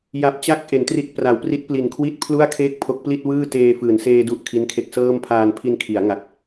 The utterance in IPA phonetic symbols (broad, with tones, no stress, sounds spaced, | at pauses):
j a˨˩ p̚ t͡ɕ a˦˥ k̚ ʔ e˩˦ n t r i˦˥ t̚ p r a˩˦ w p r i˦˥ t̚ p l i˨˩ n kʰ w i˥˩ t̚ pʰ l u˥˩ a̯ kʰ eː˥˩ k̚ pʰ o˦˥ k̚ p l i˥˩ t̚ w ɯː˥˩ t eː˧ f ɯː˩˦ n s eː˧ d u˦˥ ʔ kʰ i˦˥ n kʰ e˦˥ k̚ s ɤː˥˩ m pʰ aː˧ n pʰ i˧ n kʰ i˩˦ a̯ ŋ a˨˩ k̚